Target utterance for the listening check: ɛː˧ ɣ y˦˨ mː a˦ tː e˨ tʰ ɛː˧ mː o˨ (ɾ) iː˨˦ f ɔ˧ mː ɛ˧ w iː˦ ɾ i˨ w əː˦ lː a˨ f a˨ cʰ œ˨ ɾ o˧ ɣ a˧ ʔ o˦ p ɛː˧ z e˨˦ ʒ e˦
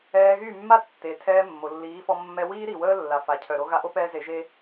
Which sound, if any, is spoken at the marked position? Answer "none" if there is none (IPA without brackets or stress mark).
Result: lː